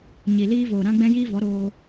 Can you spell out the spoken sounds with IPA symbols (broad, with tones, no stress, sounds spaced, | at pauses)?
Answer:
ɲ i˨ l iː˦ v oː˨ ɾ ã˦ ɡ͡b ɛ̃˦ j iː˦ v ɔ˨˦ ɾ oː˧